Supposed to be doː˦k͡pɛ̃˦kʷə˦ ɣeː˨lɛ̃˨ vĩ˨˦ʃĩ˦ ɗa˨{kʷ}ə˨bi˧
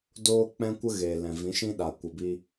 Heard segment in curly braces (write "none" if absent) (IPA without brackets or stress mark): kʷ